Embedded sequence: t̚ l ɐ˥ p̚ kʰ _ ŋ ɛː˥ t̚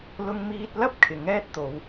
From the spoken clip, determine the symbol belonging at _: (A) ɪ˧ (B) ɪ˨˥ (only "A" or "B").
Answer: B